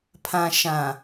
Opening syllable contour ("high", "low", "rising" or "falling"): low